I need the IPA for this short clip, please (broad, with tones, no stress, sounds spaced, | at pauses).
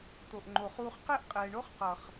t̪ o˨ ʔ ŋ͡ǃ o˨ χ uː˧ χ q ɛ˦ ʔ qʼ ɛː˨ ɳ o˦ χ q ʌ˨ χ